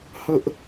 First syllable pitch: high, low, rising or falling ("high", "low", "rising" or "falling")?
high